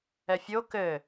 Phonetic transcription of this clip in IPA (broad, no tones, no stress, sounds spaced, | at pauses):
ɛ fʲ o k ɘ